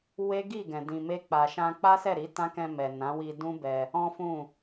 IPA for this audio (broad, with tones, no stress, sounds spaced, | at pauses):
w e˦ ɡ i˦˨ ɡ ɛ̃˨ d ĩ˨ m e˧ k͡p a˨ ʃ ã˧ k͡p a˦ s ɛ˦˨ ɾ i˨˦ t ã˦ k ɛ̃˧ m ɛ˨ n ã˨˦ w i˧ d ũ˦ b ɛ˧ | ɔ̃˦ f ũ˦˨